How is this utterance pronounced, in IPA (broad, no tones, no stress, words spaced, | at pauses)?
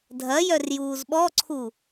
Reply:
dʱɐjœr juːzɓɔǀʰu